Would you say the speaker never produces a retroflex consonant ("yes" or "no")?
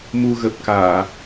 yes